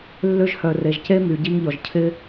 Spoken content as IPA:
lː ø˧ ʒ h œ˨ r e˨ ʒ c e˦ m y˨ ɟ i˧ ŋ ʎ ɔ˨ ʒ cʰ ɪ˦

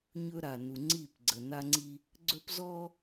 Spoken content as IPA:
ɲ ɵ˦ ɾ a˨ n u˨ ŋ͡ǀ i˦˨ p ɡ͡ǀ ə˨ n a˦ ŋ͡ǀ i˦ | ɡ͡ǀ ɵ˦ p z ɔ˦

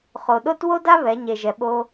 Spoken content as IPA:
χ o˩ ɗ o˥ t w o˥ d a˥ β ɛ˩˧ ɲ e˩ ʒ ɛ˩ ɓ o˧

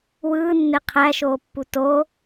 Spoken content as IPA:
w ɯː nː e qʰ æ ʃ oː pː u t o

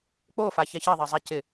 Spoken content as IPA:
k͡p o f a ç ɛ ç e ðˤ e zˤ ɛ c ɪ

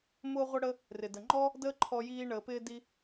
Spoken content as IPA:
m ʊː˧ ʁʷ ə˧ ɽ ə˧ | r ɪ˩ d ə˩ ŋ͡ǃ ɔ˥ | d əː˥ ǃʰ ɔ˧ j iː˧ ɳ əː˩ p ɪː˧ d i˧

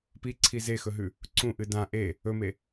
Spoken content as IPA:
p i ǀʰ i z e x ɵ ɦ ʉ | ǀ ũ ʔ ɨ d ã ʔ e | ɵ m e

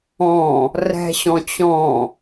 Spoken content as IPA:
ɔ̃ | r ɛ̤ ɕ ɔ̃ t͡ɕ ɔ̃

